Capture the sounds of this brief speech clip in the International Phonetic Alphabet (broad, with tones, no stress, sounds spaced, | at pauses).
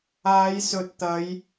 aː˨˧ j s ɵ˨˥ t̚ t̪ ɐ˨˧ j